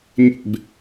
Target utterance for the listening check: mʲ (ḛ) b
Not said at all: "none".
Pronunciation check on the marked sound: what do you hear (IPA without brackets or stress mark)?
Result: ḛ